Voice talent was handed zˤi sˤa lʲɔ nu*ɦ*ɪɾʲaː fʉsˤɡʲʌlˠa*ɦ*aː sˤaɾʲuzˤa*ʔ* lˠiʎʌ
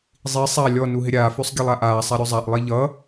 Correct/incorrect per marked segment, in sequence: correct, incorrect: ʔ, correct

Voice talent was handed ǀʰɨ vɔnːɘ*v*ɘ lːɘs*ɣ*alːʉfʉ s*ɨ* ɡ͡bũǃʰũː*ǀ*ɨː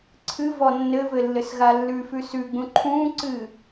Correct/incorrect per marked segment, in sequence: correct, correct, incorrect: ʉ, correct

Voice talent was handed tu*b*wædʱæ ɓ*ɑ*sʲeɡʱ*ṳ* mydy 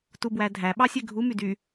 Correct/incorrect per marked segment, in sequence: correct, correct, incorrect: u

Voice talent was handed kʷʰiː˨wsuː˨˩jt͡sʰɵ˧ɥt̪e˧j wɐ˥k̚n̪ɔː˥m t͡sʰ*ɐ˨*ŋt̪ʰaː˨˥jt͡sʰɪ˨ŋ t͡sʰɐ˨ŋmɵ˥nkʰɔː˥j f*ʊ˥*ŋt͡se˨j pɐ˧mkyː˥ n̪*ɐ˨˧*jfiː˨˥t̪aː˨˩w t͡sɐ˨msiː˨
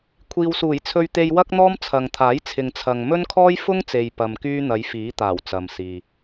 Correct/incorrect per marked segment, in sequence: correct, correct, correct

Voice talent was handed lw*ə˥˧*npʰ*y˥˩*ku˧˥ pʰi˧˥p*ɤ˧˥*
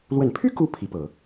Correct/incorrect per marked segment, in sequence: incorrect: ə˨˩, incorrect: y˥, incorrect: ɤ˨˩˦

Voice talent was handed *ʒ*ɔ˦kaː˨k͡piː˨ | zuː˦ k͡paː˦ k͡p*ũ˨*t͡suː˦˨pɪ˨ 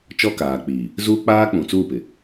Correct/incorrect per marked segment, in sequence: incorrect: t͡ʃ, correct

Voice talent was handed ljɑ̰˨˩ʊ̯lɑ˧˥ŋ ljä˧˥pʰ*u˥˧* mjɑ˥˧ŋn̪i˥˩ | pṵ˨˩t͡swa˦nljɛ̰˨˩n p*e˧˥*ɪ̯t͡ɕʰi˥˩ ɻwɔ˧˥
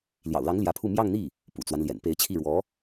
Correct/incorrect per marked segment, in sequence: correct, correct

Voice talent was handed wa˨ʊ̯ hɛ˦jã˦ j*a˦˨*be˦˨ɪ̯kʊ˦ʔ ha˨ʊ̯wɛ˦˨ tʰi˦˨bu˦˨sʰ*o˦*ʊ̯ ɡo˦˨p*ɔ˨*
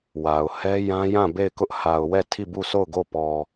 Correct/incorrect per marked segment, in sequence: incorrect: ã˦˨, incorrect: o˦˨, correct

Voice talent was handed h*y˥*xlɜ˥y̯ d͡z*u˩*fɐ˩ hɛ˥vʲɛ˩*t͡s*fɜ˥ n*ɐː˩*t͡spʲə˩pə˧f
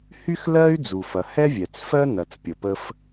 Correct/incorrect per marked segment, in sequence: correct, correct, correct, incorrect: ɐ˩

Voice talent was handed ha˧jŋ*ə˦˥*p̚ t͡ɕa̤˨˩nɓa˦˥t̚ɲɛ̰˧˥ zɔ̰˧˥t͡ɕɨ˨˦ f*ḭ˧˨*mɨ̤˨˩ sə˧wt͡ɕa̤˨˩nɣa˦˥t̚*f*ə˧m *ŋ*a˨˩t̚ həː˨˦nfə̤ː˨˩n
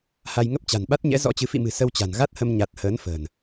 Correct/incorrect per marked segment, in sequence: correct, correct, incorrect: h, incorrect: ɲ

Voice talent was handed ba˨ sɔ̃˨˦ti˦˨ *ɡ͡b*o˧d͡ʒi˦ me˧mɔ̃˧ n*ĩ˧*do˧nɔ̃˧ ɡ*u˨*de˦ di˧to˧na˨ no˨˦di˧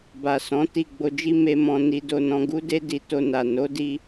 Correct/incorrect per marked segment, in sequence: correct, incorrect: i˧, incorrect: u˦

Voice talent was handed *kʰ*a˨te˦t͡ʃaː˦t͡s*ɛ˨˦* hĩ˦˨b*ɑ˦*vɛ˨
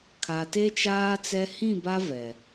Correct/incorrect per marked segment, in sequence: correct, incorrect: ɛ˦, incorrect: a˦

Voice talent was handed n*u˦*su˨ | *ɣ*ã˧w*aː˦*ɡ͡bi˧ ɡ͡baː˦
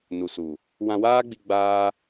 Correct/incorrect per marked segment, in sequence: incorrect: u˨, incorrect: w, correct

